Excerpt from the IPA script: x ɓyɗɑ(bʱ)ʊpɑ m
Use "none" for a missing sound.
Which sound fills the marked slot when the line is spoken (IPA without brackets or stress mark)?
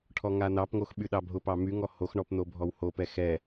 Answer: bʱ